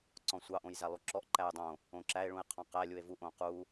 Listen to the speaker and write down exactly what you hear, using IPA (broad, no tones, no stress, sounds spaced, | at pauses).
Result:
ǀ ɔ̃ sʷ ɑ ʔ õ j z æ lˠ u ǁ ɔ ʔ ǃ æ j dˤ õ | õ ǁ æ e̯ ɭ ũ e̯ qʰ ɔ̃ q æ lʲ u e̯ v u ʔ õ q u